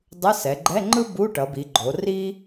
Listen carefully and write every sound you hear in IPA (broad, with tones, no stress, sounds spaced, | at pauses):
dˤ ɯ˧˥˧ s ɛ˩˧ ɡ͡ǃ ɛ˧˥˧ ŋ͡ǃ ɯ˥ b u˧˥˧ ʈ ʌ˩˧ b i˩˧ ɡ͡ǃ o˩˧ r i˥